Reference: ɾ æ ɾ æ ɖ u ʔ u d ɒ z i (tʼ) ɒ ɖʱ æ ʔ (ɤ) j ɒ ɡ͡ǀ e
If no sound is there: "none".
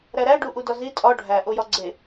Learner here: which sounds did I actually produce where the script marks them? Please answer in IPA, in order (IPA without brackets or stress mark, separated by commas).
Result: tʼ, o